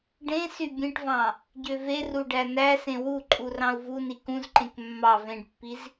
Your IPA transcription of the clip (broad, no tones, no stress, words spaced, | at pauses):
ɖẽsy bʲẽʈvɑ̃ | ɟøveru ɖænæsẽ wuǃʼu rɑ̃u̯vuni kũzǃẽk mːɑ vẽɖpːiz